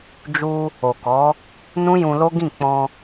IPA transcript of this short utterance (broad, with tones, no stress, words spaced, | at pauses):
d͡ʒu˧ | o˨kɔ˨˦ | nũ˦jũ˧lo˦ɡĩ˦˨ k͡pɔ̃˧